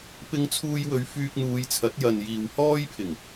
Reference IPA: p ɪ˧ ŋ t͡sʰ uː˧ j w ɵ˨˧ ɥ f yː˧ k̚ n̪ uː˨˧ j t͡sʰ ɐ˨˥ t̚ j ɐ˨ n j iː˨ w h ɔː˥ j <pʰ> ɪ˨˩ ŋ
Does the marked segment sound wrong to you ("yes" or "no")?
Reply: no